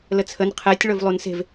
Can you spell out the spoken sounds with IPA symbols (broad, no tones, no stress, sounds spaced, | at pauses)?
l ə t͡sʰ ə n qʰ ɛ tʲ ɭ ɵ v lˠ u n s e̤ v